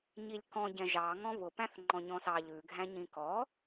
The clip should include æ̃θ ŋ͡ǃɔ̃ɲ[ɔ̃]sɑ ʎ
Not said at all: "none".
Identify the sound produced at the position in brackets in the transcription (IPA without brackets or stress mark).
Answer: ɔ̃